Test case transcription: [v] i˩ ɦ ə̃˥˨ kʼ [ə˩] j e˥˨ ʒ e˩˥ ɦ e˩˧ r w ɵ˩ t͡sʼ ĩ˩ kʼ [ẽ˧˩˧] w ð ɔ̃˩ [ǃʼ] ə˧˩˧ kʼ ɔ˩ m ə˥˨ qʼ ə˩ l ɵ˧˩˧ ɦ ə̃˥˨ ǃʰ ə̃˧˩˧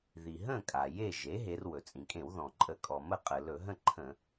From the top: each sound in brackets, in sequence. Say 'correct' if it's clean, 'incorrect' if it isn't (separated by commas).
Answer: incorrect, incorrect, correct, correct